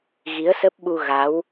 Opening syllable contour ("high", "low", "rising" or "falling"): rising